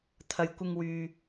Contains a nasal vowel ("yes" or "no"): no